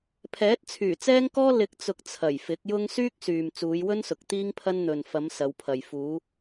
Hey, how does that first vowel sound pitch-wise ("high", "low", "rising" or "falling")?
rising